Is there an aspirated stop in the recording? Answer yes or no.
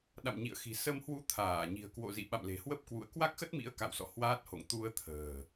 yes